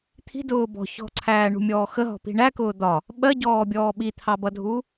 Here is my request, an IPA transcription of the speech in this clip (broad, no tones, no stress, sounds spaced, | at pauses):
t̪ʰ i̤ d ʊː b ɔ̤ ç ɔ̤ ǀʰ æː ɳ ṳ mʲ ɔː x ə ɦ ɔ̤ p i̤ ɳ æ k ʊː d̪ ɒ | ɓ ɜ ɟ ɔː bʲ ɔː ɓ i t̪ʰ ɑ b ʌ dʱ u